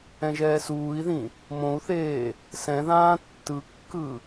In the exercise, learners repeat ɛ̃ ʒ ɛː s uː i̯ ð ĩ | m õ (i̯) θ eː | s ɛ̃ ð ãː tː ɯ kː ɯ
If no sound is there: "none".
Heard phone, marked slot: u̯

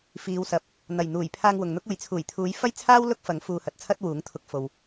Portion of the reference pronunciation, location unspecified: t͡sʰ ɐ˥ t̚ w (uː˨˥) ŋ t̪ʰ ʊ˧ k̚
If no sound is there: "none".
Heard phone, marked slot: uː˨˥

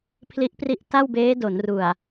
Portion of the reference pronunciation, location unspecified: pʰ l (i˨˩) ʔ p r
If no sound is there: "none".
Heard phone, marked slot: i˦˥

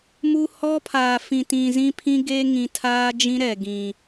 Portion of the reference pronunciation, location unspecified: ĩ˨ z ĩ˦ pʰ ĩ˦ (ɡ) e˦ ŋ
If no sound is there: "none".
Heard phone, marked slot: ɡ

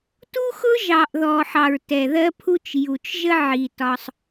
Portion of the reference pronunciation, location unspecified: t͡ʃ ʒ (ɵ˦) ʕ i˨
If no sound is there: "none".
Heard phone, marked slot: ə˦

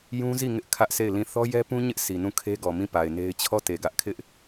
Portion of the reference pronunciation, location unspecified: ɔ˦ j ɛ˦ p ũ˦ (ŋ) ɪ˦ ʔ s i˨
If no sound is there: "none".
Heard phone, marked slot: ɲ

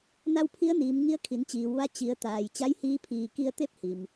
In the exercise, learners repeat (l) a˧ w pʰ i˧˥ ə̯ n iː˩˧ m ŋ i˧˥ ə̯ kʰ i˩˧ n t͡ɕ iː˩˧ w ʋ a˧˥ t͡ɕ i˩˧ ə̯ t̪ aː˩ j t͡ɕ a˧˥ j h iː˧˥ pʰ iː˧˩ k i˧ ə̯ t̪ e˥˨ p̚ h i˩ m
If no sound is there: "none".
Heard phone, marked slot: n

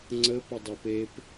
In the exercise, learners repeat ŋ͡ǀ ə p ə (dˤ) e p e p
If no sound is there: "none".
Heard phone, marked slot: dˤ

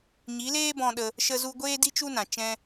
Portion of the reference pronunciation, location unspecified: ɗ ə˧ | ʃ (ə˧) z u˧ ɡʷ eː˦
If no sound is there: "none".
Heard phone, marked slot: ə˧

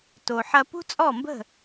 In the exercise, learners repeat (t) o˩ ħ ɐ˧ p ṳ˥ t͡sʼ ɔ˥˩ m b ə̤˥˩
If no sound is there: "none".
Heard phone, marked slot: t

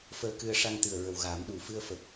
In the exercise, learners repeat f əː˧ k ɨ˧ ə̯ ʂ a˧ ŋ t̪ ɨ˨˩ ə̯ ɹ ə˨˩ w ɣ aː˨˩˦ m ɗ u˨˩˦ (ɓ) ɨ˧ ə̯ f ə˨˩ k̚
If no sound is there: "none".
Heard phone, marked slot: f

